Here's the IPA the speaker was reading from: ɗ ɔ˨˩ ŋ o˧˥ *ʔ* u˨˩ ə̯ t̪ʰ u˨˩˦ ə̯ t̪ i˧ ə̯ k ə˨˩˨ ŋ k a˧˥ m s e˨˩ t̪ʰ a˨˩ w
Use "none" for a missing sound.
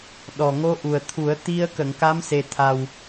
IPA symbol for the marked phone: ʔ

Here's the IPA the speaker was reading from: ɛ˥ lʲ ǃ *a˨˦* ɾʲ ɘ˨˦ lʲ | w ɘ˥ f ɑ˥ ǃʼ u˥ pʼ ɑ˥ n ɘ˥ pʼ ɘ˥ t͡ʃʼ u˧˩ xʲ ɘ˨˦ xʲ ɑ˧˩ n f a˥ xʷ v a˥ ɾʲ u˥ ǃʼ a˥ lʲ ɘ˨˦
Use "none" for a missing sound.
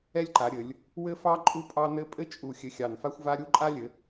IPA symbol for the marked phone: a˨˦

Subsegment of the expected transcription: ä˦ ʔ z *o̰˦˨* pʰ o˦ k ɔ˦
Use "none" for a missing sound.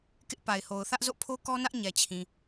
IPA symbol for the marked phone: o̰˦˨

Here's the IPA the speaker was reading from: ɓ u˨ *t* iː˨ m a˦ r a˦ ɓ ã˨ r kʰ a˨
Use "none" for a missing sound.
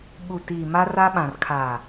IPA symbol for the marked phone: t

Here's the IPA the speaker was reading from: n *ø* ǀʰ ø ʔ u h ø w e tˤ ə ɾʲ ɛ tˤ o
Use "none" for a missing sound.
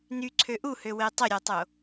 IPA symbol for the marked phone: y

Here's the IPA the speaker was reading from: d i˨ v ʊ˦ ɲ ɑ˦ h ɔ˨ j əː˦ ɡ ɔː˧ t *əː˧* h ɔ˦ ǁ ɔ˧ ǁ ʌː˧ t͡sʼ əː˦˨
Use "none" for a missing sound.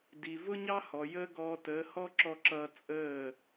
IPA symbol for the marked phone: əː˨˦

